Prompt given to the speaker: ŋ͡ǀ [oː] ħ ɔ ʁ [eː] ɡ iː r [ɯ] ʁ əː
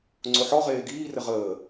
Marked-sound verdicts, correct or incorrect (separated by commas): incorrect, correct, incorrect